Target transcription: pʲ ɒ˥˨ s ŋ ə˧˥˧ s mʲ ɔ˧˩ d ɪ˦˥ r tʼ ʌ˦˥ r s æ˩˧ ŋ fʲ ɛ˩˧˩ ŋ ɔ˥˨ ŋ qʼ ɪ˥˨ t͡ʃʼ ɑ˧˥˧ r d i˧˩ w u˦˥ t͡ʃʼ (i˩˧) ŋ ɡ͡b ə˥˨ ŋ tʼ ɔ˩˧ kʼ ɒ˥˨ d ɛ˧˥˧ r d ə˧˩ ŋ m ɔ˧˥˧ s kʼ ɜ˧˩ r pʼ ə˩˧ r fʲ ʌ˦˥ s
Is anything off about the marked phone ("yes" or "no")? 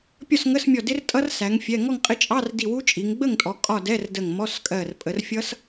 no